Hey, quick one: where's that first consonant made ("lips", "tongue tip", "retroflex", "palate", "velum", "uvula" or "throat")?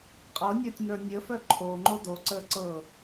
uvula